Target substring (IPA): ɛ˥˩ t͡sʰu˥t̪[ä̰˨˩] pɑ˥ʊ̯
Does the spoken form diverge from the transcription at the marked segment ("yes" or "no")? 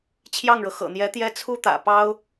no